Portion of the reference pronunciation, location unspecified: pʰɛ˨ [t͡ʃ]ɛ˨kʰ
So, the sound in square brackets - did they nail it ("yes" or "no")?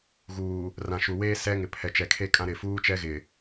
yes